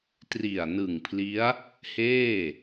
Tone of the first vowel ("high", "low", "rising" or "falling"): low